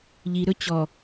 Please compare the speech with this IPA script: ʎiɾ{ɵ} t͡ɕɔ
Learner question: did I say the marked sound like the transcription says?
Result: yes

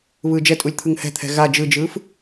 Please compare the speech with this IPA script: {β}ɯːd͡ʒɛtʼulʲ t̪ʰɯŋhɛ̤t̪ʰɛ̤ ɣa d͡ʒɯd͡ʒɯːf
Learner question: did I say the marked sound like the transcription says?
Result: yes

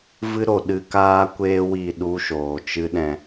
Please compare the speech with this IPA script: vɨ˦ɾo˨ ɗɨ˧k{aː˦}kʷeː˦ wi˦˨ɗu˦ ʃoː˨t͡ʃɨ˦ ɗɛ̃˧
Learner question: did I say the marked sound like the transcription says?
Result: yes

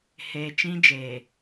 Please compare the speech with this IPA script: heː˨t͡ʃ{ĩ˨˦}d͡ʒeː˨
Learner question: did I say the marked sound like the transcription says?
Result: no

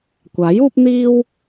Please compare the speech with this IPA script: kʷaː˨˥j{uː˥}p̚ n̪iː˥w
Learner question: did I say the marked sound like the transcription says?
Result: yes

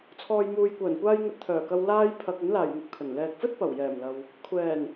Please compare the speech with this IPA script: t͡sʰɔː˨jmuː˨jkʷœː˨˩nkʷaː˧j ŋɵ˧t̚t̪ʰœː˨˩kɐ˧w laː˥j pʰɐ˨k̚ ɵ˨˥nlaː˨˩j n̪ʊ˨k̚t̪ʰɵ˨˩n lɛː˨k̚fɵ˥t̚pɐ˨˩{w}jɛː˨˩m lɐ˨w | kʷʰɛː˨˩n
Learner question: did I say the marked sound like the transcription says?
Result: yes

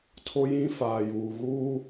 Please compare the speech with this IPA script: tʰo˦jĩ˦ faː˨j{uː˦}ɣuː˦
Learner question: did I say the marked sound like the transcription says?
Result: no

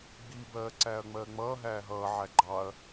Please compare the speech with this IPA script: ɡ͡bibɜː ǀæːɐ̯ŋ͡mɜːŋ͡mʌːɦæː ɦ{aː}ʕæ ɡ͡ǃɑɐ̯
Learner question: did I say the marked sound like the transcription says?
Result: no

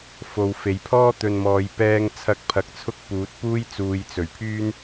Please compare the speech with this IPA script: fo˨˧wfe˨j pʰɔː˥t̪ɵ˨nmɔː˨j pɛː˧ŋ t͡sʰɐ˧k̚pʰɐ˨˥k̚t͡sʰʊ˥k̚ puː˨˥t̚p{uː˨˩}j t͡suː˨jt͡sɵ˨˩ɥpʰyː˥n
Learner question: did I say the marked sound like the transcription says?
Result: no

